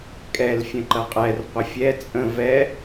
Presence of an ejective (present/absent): present